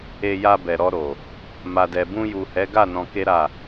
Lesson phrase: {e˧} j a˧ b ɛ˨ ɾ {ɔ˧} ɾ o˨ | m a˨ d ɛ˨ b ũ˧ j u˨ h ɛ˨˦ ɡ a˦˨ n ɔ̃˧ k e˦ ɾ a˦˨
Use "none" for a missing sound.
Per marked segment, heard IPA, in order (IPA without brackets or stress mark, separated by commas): e˧, ɔ˧